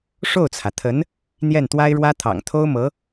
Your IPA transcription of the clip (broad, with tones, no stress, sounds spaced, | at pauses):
ʂ o˥˩ ʊ̯ t͡sʰ ä˩ t̪ʰ ə˧˥ n | n̪ j ɛ˥˩ n t̪ w a˥ ɪ̯ ɻ w ä˥ t̪ʰ ɑ̰˨˩ ŋ t̪ʰ o˥ ʊ̯ m ɤ˧˥